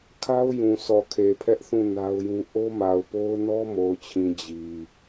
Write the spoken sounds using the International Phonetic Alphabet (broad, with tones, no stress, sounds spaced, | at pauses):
kʰ a˦ ʊ̯ j ũ˨ sʰ ɔ˨ kʰ e˨ pʰ ɛ˦ ʔ θ ũ˦˨ n a˦ ʊ̯ j ũ˦ ʔ o˦ m a˨ ʊ̯ p o˦ ʊ̯ n ɔ˦ m o˨ ʊ̯ t͡ɕʰ ĩ˨ d͡ʑ i˨